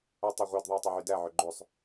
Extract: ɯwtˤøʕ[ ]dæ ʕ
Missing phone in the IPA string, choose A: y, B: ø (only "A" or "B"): A